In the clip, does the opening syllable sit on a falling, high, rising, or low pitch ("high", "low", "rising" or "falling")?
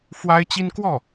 high